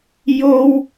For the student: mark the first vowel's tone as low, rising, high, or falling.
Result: high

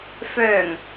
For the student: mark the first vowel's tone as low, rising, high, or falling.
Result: low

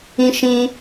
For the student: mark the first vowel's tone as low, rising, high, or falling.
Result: high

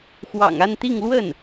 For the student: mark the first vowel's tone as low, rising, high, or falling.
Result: low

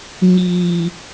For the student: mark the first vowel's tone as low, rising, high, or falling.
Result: low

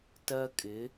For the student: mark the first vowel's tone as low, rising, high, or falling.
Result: high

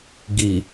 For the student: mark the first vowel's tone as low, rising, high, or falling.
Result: low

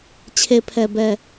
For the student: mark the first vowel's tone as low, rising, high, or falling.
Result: low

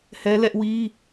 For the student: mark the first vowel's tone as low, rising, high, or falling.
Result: high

